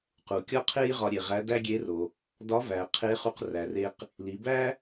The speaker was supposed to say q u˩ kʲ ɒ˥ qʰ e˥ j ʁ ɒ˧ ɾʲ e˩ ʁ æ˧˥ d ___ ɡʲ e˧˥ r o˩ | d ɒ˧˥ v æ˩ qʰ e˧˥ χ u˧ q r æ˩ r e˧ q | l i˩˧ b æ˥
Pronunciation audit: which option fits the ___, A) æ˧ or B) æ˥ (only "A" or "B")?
B